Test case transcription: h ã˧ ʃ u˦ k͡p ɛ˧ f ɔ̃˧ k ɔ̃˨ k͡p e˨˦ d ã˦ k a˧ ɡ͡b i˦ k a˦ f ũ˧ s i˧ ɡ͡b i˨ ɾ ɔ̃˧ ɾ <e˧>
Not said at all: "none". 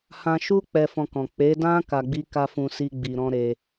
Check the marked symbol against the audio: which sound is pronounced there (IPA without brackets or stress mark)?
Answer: e˧